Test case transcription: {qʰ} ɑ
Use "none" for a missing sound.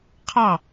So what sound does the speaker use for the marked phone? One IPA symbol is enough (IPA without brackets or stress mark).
qʰ